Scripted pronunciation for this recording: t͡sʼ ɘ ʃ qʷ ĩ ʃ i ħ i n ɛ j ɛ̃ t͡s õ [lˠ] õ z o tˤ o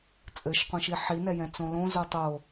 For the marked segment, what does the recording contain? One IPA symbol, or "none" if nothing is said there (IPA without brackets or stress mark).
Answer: l